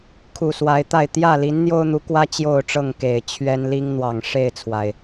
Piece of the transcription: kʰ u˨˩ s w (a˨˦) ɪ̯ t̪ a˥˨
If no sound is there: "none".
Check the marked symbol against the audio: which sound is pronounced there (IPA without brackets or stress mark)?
a˨˦